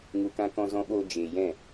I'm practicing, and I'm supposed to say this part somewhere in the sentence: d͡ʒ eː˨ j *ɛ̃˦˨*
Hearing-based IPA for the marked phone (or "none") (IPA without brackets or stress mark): ɛ̃˦˨